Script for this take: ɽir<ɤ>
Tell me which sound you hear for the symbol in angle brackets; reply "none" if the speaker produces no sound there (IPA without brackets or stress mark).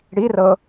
ɤ